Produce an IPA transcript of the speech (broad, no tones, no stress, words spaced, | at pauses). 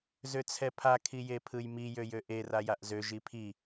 zøt͡sʰɛpʰa kʰijepʰɯjmi jøjøʔe rajaʔzø ʒipʰi